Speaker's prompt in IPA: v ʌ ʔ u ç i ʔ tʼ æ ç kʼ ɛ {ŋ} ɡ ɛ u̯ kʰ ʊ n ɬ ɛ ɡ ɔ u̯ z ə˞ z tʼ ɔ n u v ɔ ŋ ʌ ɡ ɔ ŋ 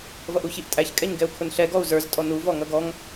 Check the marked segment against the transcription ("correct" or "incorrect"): incorrect